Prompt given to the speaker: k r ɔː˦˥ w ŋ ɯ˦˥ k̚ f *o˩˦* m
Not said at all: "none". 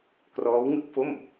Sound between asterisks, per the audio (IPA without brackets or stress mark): o˥˩